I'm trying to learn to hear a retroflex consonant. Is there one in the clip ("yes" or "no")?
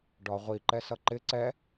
yes